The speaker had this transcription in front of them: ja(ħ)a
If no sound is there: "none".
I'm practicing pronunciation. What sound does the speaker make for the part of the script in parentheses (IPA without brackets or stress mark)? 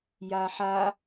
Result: ħ